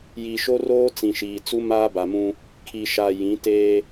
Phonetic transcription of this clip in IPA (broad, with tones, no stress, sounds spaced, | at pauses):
j i˨ ʃ o˦ r oː˦ t͡s ĩ˨ ʃ iː˨ t͡s u˦ m aː˦ b a˨ m ũ˦ | kʰ i˨ ʃ a˨ j ĩ˨˦ t eː˦